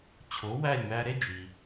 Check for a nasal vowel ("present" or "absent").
absent